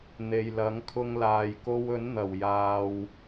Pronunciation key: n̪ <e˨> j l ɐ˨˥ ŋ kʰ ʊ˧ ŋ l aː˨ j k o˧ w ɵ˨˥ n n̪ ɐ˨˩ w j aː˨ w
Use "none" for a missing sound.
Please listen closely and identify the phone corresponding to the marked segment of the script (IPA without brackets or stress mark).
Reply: e˨